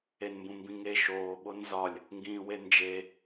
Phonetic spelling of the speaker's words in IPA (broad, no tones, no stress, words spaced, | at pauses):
enmbũmbĩŋe ʃoː ɓonzɒlʲ | ŋɡĩːwend͡ʒe